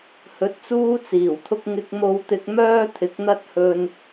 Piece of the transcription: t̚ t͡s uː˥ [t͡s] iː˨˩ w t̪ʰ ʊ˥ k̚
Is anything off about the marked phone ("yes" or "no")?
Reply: no